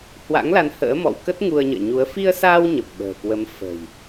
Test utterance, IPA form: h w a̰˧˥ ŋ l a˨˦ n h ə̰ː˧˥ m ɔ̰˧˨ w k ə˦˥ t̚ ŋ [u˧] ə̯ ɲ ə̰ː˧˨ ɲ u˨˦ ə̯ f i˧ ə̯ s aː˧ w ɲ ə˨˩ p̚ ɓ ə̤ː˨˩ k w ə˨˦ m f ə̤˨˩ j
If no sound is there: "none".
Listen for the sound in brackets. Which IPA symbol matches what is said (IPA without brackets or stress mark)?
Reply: u˧